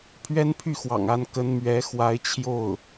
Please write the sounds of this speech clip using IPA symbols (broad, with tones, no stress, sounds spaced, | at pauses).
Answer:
pʰ ɥ ɛ˥ n pʰ y˥˩ x w ɑ̰˨˩ ŋ a˥˩ n k ə˥ n m ɥ ɛ˧˥ x w a˧˥ ɪ̯ t͡ɕʰ j o˥˩ ʊ̯